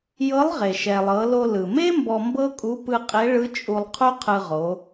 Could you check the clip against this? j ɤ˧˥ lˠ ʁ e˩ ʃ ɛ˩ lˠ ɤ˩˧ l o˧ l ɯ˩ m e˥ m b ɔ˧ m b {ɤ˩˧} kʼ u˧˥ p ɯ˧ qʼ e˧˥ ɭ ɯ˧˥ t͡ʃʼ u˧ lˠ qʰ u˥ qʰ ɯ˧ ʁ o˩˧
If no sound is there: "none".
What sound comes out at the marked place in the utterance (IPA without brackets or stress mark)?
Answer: ɤ˥